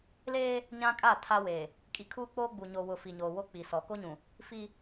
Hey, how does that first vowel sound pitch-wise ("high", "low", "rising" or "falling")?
high